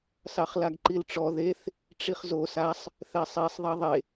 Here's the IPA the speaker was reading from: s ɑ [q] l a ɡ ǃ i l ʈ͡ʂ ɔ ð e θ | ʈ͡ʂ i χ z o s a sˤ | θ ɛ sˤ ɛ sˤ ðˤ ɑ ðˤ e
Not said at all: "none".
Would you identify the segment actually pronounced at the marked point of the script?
χ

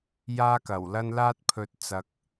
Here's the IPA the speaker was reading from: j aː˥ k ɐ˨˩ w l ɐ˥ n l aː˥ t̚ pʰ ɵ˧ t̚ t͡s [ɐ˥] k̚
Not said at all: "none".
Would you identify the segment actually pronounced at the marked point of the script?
ɐ˧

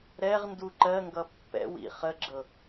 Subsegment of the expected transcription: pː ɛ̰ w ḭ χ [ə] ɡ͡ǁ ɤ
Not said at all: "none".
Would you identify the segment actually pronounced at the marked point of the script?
ə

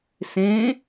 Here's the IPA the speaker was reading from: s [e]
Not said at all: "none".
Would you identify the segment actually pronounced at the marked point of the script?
ẽ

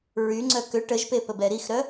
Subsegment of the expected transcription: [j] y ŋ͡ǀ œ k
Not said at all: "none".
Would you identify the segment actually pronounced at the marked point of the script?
ɹ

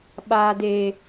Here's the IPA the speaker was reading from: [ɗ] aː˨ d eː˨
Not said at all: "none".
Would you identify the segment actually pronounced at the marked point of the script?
ɓ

